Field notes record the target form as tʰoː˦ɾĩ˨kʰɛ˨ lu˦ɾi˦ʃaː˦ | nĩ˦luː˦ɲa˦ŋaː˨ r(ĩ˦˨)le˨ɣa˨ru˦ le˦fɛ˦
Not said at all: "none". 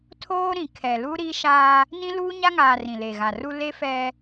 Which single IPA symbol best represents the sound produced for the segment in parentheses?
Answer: ĩ˨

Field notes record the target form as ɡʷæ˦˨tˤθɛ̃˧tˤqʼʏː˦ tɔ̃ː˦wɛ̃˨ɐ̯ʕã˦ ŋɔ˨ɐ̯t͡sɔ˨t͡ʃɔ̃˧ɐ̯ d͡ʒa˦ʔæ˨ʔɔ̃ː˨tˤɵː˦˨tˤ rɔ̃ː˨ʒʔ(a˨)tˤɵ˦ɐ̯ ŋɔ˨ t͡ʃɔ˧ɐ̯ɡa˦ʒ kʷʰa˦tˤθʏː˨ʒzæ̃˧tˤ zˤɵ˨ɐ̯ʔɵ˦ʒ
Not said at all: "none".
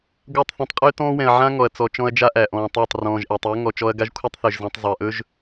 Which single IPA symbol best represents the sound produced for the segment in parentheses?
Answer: æ˨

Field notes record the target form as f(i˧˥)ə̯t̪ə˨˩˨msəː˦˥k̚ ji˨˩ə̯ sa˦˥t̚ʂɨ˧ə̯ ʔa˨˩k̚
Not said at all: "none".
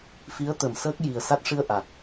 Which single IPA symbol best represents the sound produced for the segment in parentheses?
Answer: i˧˥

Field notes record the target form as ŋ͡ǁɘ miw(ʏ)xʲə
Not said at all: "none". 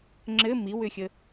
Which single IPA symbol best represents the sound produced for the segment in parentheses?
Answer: ʏ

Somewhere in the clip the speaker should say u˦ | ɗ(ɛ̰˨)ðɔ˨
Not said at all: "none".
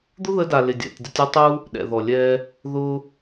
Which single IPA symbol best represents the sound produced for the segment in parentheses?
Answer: ɛ̰˨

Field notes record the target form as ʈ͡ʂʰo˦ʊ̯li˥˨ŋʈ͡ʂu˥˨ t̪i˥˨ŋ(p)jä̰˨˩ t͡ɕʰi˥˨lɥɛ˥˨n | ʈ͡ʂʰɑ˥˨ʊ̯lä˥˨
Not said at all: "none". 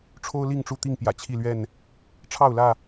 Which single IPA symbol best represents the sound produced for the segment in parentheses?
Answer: p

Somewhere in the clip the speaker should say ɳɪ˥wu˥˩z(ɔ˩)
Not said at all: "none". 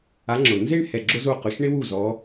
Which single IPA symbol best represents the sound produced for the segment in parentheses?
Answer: ɔ˨˦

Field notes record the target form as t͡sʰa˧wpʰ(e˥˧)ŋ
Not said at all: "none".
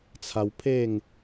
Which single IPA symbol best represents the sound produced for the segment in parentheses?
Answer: e˥˧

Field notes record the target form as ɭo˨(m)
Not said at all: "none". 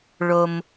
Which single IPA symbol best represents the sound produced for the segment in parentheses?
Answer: m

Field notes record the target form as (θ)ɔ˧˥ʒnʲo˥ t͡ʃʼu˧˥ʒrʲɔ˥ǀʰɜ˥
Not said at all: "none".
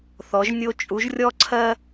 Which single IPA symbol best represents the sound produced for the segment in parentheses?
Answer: θ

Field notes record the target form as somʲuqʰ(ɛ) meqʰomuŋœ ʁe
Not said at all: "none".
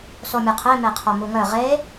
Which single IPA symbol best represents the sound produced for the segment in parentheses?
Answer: e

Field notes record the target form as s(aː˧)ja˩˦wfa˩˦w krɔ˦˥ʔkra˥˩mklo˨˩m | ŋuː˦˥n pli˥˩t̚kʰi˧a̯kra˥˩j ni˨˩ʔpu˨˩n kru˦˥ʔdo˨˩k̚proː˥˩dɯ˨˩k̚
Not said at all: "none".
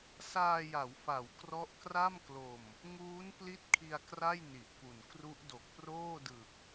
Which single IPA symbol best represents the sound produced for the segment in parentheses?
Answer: aː˧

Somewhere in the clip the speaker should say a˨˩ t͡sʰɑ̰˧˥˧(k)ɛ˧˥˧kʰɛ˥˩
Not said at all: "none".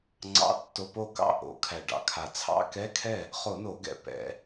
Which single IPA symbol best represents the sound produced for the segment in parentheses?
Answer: k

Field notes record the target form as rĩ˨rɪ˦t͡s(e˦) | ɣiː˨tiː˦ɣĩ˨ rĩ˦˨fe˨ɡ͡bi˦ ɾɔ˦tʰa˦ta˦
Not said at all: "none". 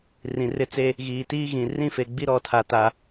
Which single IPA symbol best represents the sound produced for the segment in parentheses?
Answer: e˦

